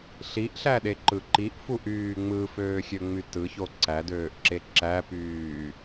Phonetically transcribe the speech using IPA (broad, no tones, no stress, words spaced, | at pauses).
ɬiʔɬæɗeǃɯ ǃiʔfuʔyː ŋ͡mɯføːxʲøŋ͡my tɯço ǀædøːʔǁe ǁæpyː